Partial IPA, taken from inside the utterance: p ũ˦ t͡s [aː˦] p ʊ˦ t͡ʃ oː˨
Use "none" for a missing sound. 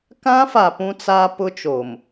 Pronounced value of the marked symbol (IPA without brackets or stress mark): aː˦